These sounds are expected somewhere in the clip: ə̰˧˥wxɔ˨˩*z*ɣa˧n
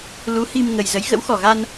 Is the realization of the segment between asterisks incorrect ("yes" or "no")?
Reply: yes